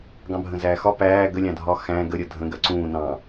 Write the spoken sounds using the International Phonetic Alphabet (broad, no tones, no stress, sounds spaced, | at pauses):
ɡ ɑ̃ bʱ ə̃ z æː x ɒ p æː ɡ ə lʲ ɑ̃ dʱ ɒ x æ̃ ɡ ə ɾʲ ʌ dʱ ə̃ ɡ ɜ ǀ ũː n ɑ̃